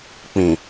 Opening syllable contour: low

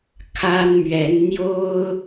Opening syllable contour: high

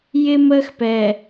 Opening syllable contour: high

